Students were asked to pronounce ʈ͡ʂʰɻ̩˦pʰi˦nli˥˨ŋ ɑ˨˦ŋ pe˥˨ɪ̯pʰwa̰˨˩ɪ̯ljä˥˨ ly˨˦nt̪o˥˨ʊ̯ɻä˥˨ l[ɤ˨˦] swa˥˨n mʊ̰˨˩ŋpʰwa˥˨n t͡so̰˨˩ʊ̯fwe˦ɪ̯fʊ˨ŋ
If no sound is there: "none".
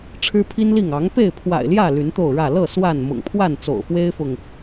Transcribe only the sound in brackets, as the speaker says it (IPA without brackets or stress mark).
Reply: ɤ˥˨